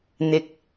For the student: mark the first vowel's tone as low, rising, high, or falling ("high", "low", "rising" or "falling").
high